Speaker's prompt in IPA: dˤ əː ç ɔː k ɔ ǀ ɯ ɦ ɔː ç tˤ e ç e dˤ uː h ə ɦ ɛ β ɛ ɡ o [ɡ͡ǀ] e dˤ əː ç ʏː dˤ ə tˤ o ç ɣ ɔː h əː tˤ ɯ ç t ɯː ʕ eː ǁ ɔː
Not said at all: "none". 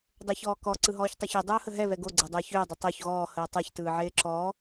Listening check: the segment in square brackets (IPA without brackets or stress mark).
ɡ͡ǀ